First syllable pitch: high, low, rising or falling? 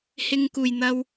high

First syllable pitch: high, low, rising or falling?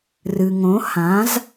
low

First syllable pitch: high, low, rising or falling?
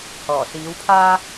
low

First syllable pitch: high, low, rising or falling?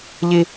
high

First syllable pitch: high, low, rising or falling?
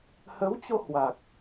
rising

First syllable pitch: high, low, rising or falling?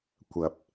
low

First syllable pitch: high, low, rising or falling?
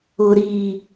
low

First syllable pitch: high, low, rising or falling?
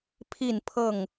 falling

